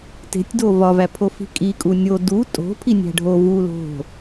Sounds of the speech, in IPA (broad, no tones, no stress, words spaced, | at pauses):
te̤tʲdo vɒvæpʰofi̤ kʼikʼu nʲo du tʼo̤pʰinʲæ̤ ɖʱo vu lo̤